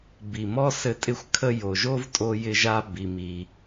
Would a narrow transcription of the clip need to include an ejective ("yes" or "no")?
yes